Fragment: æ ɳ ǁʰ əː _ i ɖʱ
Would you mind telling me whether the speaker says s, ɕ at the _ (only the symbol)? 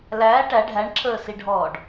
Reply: s